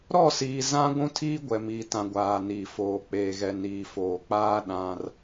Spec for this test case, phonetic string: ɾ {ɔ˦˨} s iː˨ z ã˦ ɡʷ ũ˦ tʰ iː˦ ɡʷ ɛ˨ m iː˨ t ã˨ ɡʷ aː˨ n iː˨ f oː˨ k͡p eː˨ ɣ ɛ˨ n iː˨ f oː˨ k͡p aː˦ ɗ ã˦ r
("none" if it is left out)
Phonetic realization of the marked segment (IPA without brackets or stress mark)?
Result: ɔ˦˨